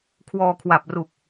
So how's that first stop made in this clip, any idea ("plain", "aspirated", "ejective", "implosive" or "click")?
aspirated